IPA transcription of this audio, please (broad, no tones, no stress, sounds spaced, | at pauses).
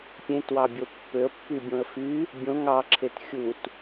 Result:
pʲ ẽ t w ɑ bʲ o pː ø ə̯ pː y bʲ õ ə̯ f y | bʲ õ ŋ ɑ ǁʰ e t xʲ u t